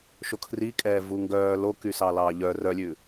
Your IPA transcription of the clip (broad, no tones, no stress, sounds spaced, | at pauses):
ʃ o kʰ r i kʼ ɛː v u ŋ ɡ œː l o k y s ɑ l ɑː ʎ œ r œ lʲ ʉ